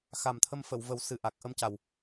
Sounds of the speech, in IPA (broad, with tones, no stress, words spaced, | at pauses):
xa˨˩mt̪ʰə˧m fə˨˩˨wvə˨˩˦wsɨ˨˩ ʔa˨˩k̚ʔə˧mca˨˩w